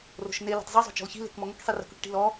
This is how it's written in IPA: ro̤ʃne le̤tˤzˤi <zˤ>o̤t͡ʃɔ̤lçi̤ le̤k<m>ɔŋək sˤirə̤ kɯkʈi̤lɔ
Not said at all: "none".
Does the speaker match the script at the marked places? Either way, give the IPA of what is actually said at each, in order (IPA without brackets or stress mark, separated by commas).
zˤ, m